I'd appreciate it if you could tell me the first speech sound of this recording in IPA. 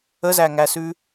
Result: ə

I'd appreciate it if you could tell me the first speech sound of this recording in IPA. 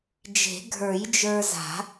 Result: d͡ʒ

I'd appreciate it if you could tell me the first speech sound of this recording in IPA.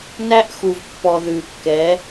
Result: n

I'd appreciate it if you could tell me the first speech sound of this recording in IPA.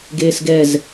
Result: ɡ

